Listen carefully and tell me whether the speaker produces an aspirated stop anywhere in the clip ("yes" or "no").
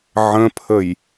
yes